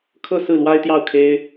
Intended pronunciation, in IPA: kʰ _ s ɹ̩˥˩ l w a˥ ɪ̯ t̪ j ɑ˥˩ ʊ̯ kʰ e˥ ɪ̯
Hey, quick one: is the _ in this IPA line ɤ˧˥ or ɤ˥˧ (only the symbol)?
ɤ˥˧